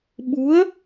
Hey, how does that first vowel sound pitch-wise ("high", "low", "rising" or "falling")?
rising